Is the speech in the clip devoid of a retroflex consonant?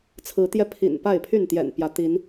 yes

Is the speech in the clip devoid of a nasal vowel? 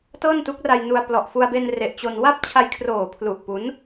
yes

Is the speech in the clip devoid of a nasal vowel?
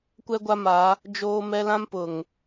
no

